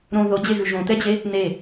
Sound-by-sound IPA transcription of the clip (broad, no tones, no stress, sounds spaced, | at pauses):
ɾ õ ð o d͡ʑ e ɣ ʉ ʒ õ t̪ ɛ d͡ʑ e | n e